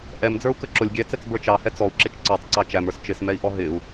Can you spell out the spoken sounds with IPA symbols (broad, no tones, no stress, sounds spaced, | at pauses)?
ʔ ɛ m d͡z ə˞ u̯ k ə ǁ ʊ lʲ ɡʲ ɛ t͡s ɛ t͡s b ə˞ t͡ʃ ɑ h ɛ t͡s ɔ u̯ ǁ ɪ t͡ʃ ǀ ɔ tˤ ǀ ɑ t͡ʃ æ m ə˞ s t͡ʃ ɪ s m ɛ i̯ ʔ ɔ ɦ ɪ u̯